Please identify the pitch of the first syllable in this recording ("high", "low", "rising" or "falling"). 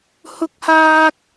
high